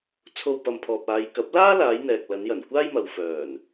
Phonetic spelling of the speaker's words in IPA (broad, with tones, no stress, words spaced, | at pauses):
t͡sʰo˧wpɐ˨mpʰɔː˨p̚ aː˨˧j kɐ˨˥p̚laː˥laː˨˧j n̪ɛː˨k̚lɐ˨˧njɐ˨˩n kʷaː˥jmɐ˨w fœː˨˩n